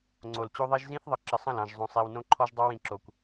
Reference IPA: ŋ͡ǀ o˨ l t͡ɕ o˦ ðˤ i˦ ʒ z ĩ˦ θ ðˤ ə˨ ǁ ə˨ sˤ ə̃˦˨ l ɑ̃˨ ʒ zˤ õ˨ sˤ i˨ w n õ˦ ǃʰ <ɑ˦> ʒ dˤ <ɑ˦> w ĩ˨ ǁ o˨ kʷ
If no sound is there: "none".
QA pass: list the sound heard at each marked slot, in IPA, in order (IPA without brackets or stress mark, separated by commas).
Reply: ɔ˦, ɑ˦